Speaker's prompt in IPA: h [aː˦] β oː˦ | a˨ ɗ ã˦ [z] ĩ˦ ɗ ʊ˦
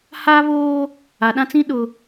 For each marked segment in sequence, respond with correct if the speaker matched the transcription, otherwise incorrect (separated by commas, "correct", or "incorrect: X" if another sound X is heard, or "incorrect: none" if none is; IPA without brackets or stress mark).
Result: correct, incorrect: t͡s